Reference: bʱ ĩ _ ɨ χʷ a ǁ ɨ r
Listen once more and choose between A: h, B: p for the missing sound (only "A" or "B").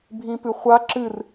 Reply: B